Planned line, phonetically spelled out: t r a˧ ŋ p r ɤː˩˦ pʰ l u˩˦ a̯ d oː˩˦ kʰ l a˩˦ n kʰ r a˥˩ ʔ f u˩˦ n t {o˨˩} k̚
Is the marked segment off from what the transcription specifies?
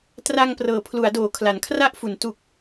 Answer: yes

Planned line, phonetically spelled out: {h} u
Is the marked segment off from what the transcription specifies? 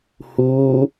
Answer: no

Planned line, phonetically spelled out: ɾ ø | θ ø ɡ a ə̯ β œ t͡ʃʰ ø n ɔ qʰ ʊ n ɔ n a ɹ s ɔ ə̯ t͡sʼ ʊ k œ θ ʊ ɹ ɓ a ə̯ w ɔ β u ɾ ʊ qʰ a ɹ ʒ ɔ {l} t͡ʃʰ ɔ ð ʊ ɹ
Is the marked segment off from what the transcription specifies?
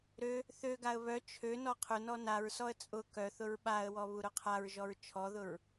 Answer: yes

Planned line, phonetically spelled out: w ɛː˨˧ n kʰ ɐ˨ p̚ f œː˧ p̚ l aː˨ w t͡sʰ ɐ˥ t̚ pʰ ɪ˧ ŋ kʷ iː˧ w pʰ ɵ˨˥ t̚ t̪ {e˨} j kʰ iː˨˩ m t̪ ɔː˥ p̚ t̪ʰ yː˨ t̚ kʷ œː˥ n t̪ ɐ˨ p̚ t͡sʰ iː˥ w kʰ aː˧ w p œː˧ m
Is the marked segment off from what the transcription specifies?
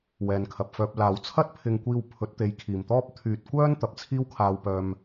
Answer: yes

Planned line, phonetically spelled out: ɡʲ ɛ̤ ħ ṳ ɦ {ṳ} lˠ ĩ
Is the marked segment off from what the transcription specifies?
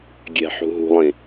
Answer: no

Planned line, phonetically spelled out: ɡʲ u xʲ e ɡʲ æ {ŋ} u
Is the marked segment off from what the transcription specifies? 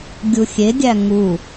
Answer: no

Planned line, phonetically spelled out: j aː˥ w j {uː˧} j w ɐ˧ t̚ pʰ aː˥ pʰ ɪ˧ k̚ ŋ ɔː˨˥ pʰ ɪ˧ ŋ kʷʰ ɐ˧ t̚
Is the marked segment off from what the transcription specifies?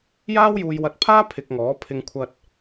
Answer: no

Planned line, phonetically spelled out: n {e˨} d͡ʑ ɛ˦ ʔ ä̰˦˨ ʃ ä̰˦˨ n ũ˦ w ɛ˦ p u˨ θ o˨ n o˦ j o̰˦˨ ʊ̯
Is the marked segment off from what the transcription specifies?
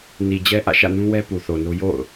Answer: yes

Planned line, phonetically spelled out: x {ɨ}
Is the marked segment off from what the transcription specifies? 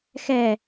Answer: yes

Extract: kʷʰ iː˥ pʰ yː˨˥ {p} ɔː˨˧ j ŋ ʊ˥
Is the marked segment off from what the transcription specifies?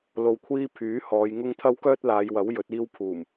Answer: yes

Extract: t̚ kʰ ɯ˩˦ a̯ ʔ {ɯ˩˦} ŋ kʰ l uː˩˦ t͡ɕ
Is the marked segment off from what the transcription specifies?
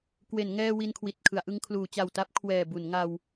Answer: yes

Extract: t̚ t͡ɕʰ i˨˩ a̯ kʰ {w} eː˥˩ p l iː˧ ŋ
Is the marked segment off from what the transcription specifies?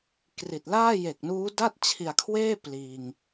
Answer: no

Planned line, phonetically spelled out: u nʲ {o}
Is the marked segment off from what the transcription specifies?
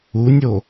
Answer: no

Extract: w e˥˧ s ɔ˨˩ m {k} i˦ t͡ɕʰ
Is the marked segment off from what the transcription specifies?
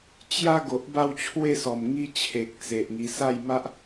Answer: yes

